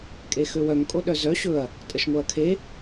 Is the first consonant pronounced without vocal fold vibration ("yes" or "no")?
yes